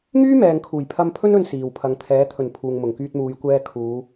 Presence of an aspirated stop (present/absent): present